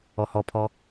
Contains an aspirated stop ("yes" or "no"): yes